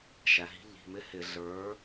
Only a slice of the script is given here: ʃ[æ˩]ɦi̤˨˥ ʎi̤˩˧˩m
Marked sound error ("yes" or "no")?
no